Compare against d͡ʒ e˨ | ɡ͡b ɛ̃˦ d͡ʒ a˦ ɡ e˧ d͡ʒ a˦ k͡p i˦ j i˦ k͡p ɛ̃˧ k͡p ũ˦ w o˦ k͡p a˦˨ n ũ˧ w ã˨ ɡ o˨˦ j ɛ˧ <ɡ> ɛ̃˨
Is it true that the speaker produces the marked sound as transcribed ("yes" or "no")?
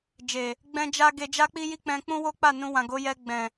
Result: no